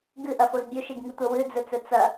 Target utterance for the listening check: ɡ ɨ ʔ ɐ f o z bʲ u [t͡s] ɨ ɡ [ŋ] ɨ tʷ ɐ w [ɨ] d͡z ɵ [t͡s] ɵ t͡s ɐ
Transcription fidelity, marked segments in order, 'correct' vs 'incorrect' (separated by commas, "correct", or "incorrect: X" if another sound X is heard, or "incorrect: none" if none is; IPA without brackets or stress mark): incorrect: ʃ, correct, correct, correct